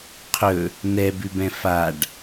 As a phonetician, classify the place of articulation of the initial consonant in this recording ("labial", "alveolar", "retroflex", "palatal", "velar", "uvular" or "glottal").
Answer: uvular